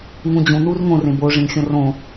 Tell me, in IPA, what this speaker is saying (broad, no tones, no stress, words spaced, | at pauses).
ŋũd͡ʑũ nurŋõ rẽbo ʐẽŋxʲõrõ